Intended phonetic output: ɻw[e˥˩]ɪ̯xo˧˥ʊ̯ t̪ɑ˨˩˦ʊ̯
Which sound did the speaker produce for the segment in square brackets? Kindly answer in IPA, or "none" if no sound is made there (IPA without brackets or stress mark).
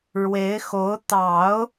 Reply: e˧˥